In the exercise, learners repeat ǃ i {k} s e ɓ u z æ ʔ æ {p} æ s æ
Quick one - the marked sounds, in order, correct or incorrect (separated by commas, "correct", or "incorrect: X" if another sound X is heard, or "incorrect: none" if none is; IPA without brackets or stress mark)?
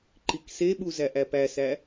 correct, correct